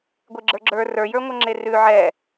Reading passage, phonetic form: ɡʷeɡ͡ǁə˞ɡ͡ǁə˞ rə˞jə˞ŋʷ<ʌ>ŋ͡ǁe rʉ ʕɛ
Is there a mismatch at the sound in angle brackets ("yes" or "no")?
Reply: no